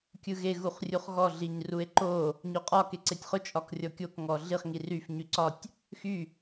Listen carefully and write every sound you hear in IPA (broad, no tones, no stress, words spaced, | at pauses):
kʲɯɣe ɣuχrʲuχɣɔ ɮiɲrue̯ǃo | ɲoqʼɒ keǀetʲχʊ t͡ʃʼɒkrʲɔkʲok ŋɔɮiχ ŋiryf ɲyǀɒtʲ | xy